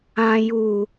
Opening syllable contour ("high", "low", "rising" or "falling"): low